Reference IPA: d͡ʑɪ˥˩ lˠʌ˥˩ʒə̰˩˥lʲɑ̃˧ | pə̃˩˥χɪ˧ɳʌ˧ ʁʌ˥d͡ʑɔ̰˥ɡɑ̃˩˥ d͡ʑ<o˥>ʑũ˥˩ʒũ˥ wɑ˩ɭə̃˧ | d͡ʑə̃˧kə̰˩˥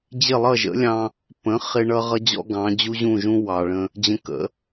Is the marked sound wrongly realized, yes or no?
yes